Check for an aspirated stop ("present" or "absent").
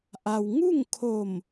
present